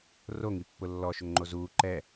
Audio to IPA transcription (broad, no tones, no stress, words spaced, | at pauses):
ro ŋipːʊlːɔ ʃʊŋŋ͡ǃozuː ǃɛ